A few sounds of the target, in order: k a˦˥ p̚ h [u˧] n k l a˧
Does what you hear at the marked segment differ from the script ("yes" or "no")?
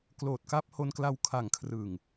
yes